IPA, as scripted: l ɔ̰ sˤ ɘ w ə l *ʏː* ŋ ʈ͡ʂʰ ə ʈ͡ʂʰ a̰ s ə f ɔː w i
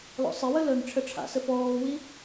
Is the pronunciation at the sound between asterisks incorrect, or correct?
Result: incorrect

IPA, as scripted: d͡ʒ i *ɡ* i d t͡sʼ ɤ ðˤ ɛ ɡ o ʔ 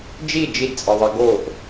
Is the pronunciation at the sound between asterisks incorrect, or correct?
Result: incorrect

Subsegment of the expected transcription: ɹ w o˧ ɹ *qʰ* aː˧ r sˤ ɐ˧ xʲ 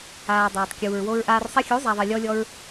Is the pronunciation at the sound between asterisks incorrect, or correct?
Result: incorrect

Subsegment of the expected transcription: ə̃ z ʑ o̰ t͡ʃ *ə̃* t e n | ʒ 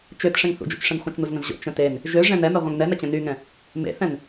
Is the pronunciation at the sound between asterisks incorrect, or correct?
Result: correct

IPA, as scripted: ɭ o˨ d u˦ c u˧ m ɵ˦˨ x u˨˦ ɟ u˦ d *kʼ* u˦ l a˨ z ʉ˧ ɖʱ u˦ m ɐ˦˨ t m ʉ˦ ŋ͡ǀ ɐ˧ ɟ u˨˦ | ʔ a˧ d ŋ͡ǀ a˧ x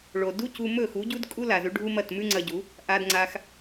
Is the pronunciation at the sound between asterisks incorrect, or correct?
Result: correct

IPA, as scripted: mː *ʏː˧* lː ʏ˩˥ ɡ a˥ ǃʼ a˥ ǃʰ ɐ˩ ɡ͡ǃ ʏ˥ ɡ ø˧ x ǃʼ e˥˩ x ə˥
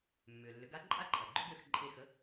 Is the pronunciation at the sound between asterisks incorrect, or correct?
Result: incorrect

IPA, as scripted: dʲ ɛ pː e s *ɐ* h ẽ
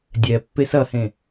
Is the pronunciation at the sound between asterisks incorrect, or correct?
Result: correct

